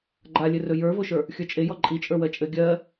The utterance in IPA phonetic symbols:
ɡ͡ǃalʲɘrɵ jə˞voʃə˞ | xʲə˞t͡ʃʼejɔ ǃʼi t͡ʃʼə˞wɜt͡ʃʼɘ ɡʲɜ

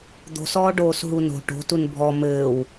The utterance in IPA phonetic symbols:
d̪o̤sɔː ɖoːsɦuno̤ ʈo̤tun bʱɔ mɘːw

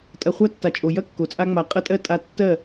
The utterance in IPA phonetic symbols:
tʼɐ˧χʷa˦tːa˨t͡ʃʼo˨ jɐ˦ kːo˨t͡sʼa˦ŋ͡ma˧ qʼɐ˦tʼɜ˦ tʼa˧ tːɜ˦˨

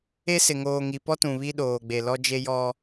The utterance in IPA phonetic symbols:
e˦sɪ˨ ŋoː˨ŋi˨pɔ˦tũ˨ βi˦ɗoː˨ɡ͡be˨lɔ˦ d͡ʒe˦jɔ˦

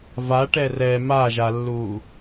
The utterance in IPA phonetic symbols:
vaʈɛ rɛ maʒalːuː

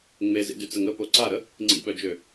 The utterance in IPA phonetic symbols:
ŋ͡mezḭdyt͡səŋ əpo ǀaɾə | ŋ͡ǀḭɓœd͡ʒø

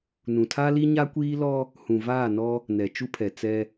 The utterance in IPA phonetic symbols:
nũ˨tʰa˦li˦ ɲa˦kʷiː˦lɔ˦ | hũ˨vaː˦˨nɔ˦ | nɛ˨t͡ʃu˦pʰɛ˨ t͡sɛ˦

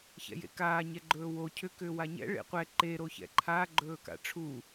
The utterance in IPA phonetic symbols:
çɛ̰jḛkaː ɲɛɡ͡ǃɵːwo cʰʏ kʏːwaɲɛ̰ ɭḛqʷɛ ǃe ɾoçɛ̰ǃʰa ɡ͡ǃɵːka̰ʈ͡ʂʰu

